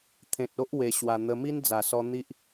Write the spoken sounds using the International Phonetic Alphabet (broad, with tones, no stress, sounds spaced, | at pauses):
t̪ʰ ẽ˨ t̚ o˦ ʔ w e˧ ɕ w a˧ n̪ ə˧ m i˦ n d͡z a˨˩ s ɔ˧ n̪ i˦ ʔ